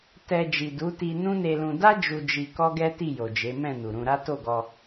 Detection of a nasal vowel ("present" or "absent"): present